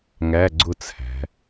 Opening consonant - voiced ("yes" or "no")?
yes